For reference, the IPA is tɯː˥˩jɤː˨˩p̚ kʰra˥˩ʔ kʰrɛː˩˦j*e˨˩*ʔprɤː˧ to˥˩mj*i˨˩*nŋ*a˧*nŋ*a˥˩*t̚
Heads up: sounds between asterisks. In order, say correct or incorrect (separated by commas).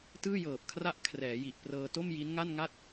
incorrect, incorrect, incorrect, correct